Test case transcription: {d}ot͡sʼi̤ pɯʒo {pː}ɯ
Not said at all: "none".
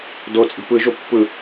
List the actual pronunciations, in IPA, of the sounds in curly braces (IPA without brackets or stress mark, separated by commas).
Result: d, pː